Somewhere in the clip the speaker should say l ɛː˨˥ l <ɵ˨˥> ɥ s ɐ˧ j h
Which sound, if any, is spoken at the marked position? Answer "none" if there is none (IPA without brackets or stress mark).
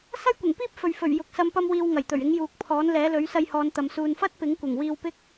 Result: ɵ˨˥